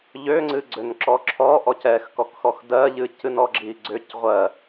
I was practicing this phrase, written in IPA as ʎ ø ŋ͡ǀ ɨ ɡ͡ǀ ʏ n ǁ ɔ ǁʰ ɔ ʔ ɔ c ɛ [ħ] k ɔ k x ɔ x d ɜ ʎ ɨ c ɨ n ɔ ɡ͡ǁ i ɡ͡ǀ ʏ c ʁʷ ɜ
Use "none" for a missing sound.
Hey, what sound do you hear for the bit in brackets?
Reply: x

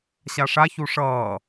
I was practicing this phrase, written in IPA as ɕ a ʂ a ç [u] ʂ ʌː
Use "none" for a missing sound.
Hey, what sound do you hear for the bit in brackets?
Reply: u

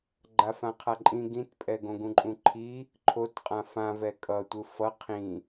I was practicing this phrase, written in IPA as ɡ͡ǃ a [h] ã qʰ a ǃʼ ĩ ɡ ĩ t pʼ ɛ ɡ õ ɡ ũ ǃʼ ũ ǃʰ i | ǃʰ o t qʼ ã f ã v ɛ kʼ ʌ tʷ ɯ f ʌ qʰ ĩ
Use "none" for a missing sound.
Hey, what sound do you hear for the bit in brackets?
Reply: f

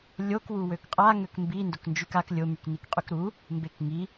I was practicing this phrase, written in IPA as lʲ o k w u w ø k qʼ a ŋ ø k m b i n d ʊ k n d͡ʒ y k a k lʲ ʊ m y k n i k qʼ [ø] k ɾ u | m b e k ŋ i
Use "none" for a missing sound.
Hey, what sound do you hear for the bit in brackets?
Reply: y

